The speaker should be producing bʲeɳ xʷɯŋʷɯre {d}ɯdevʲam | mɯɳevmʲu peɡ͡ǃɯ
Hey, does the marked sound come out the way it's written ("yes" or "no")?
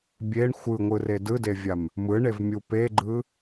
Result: yes